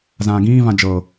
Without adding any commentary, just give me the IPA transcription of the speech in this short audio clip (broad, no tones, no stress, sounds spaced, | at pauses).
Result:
z ãː ɡ ĩː v ã d͡ʒ ɤ